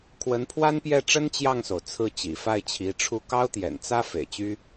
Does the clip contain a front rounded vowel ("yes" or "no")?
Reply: yes